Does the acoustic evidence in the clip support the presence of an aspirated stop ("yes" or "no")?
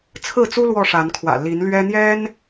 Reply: yes